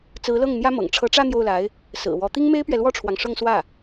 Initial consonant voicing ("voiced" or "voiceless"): voiceless